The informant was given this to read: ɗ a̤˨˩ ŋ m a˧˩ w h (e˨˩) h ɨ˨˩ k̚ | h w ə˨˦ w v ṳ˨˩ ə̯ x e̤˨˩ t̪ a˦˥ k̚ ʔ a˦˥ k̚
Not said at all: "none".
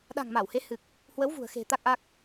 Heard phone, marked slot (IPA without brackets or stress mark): e˨˦